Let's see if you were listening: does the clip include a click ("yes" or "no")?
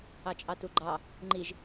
yes